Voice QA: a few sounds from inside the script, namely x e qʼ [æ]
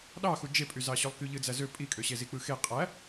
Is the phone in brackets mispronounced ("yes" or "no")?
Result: no